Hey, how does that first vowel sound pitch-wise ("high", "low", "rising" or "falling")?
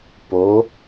rising